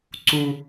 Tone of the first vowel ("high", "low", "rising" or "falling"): high